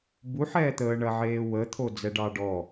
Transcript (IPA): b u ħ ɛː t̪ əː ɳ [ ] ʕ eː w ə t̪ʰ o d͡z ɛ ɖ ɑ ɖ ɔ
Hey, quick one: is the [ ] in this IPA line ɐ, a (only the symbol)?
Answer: ɐ